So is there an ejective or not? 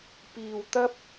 no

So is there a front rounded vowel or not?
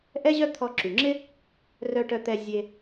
yes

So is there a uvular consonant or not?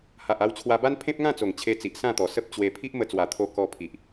no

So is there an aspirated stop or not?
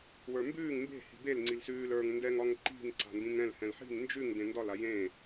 no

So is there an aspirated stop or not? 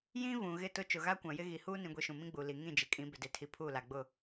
yes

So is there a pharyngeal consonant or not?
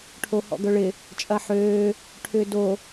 yes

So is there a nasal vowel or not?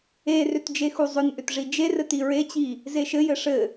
no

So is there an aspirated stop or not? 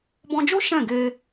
no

